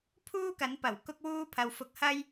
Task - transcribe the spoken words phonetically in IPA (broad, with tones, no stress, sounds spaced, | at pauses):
pʰ uː˥ k ɐ˨˥ n p ɐ˨˩ w k ʊ˥ k̚ w uː˥ pʰ ɐ˧ w f ʊ˧ k̚ h ɐ˥ j